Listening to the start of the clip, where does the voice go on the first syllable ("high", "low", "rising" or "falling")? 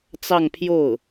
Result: falling